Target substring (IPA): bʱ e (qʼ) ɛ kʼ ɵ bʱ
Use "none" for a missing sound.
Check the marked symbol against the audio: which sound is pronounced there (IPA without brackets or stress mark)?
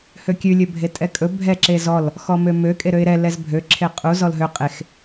tʼ